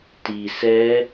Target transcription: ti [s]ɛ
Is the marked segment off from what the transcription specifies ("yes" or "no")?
no